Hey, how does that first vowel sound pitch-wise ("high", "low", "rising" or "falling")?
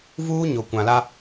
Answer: high